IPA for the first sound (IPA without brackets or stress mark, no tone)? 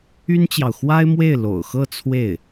y